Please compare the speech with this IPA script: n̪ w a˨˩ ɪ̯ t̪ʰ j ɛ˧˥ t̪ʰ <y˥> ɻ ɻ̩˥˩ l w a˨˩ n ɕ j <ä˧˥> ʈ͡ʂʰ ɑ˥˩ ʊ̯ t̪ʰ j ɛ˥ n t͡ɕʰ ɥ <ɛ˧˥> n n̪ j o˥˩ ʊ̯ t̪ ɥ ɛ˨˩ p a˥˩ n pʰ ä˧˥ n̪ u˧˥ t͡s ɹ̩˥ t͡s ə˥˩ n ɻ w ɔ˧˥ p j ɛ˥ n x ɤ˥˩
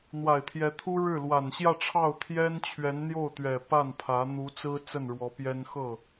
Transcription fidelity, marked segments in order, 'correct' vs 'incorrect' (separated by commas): incorrect, incorrect, correct